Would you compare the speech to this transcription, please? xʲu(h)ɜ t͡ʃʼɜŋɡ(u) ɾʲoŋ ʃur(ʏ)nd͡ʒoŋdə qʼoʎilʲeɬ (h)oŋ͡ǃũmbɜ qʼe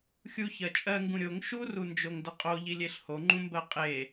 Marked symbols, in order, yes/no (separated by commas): no, no, no, yes